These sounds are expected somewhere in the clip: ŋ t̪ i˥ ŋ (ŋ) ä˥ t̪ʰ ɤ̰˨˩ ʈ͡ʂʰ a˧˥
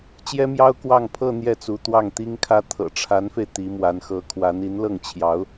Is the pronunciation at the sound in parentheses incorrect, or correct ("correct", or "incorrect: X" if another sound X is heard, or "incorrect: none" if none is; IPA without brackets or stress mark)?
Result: incorrect: kʰ